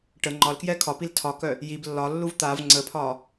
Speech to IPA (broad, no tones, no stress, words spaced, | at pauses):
ʈə ŋ͡ǃɒlkjɛ kʰɒpil tʰɒkœ | jib lːɒlːuv t̪av ŋ͡ǀəpʰɒ